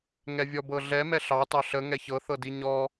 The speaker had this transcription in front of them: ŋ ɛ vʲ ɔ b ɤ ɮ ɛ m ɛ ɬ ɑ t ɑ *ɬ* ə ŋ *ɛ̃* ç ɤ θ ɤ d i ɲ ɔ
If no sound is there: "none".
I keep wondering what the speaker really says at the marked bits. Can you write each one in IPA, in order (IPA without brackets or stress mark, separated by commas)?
ɬ, ɛ